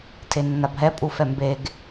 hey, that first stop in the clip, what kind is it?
aspirated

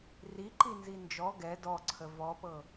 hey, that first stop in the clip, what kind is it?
click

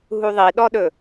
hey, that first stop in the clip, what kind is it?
implosive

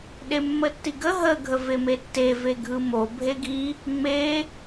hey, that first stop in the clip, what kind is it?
implosive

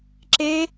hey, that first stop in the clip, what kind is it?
click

